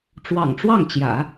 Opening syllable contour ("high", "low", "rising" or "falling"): low